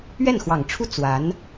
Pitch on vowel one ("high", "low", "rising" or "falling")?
falling